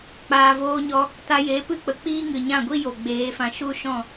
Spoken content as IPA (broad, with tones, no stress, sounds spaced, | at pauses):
k͡p aː˨ v oː˧ ɲ ɔ˧ | t a˧ j e˨˦ p ɨ˦ k͡p ə˨ k͡p iː˦ ŋ ɨ˨ ɲ ã˦˨ ɡʷ i˦ j o˨ ɡ͡b eː˨˦ f ã˧ ʃ u˦ ʃ ɔ̃˦˨